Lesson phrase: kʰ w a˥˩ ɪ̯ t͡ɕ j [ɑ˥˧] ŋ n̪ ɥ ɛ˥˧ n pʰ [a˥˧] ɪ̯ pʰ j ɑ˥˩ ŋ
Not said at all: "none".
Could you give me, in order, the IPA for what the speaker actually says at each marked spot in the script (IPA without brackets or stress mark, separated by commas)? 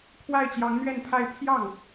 ɑ˧˥, a˥˧